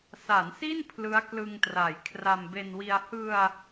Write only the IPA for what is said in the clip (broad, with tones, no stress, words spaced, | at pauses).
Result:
sa˩˦nsi˥˩n pʰlɯ˦˥a̯klɯ˧ŋtra˩˦j kʰra˧mbe˧nwi˧a̯ hɯ˧a̯